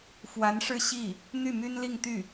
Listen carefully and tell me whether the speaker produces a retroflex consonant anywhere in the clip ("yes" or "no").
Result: yes